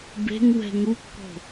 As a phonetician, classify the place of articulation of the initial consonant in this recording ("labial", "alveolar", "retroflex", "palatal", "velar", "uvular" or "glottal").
labial